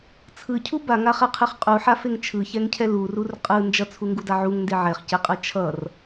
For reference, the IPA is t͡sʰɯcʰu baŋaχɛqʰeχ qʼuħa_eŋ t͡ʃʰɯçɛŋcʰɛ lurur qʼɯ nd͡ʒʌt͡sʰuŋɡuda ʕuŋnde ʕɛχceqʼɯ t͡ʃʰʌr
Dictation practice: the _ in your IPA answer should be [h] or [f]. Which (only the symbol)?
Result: f